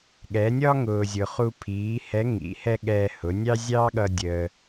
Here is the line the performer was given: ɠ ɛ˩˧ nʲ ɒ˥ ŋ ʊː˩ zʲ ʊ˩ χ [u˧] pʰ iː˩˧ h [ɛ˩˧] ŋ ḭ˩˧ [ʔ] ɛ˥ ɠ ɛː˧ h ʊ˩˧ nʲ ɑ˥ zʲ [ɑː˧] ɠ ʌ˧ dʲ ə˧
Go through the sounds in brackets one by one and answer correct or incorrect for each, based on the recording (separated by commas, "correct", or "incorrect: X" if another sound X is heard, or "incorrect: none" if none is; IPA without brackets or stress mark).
correct, incorrect: ɛ˧˥, incorrect: h, incorrect: ɑː˥